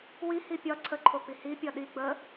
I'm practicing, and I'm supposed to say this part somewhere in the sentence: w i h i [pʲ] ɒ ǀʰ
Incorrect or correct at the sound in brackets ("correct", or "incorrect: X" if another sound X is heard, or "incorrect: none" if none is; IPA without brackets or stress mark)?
correct